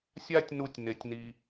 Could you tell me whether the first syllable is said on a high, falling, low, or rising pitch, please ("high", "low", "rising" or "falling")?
high